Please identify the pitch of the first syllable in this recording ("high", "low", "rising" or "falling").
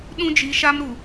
high